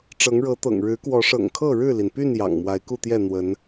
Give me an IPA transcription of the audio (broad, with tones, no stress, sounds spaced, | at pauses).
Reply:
ʈ͡ʂ ɤ˨˦ ŋ ɻ ɤ˨˦ t̪ ɤ̰˨˩ ŋ ɻ ɻ̩˨˦ k w ɔ˨˦ ʂ ɤ̰˨˩ ŋ kʰ ɤ˥˨ ɻ ɻ̩˥˨ l i˩ n p y˥˨ n j ɑ̰˨˩ ŋ m w a˨˦ ɪ̯ k u˥˨ t̪ j ɛ˥˨ n̪ w ə˨˦ n